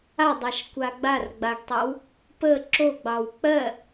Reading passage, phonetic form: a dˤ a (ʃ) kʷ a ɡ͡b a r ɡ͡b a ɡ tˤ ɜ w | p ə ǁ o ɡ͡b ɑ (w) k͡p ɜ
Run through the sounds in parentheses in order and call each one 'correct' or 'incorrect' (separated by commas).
correct, correct